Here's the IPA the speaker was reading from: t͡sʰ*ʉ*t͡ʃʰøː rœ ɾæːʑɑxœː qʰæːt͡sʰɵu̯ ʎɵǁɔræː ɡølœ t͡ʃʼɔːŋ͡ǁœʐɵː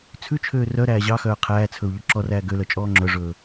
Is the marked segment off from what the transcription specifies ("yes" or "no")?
no